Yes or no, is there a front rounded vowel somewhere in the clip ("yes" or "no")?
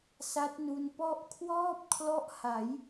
no